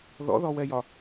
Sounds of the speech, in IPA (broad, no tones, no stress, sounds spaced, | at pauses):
ð ɔ̰ ð ɔ w ɛ j ɒ